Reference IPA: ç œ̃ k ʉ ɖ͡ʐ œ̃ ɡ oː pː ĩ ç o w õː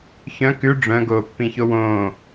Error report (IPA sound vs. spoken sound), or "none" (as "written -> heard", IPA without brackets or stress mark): none